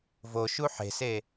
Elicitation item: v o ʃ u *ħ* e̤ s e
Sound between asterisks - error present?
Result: no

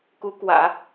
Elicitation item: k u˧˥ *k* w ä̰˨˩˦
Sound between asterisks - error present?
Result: no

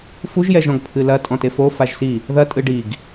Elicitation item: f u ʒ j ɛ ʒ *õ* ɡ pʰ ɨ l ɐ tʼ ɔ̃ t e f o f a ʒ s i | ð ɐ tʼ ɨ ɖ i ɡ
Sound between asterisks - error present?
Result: yes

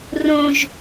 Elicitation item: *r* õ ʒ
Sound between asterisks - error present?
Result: no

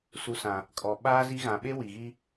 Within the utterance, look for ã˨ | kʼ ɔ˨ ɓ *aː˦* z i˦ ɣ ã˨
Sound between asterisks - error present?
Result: no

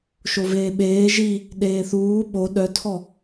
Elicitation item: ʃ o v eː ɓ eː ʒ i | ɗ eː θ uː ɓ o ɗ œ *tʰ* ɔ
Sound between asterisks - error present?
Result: no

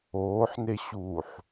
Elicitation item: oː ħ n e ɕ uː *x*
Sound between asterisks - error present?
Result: yes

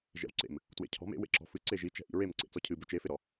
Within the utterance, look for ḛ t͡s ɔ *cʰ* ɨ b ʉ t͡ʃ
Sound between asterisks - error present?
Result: no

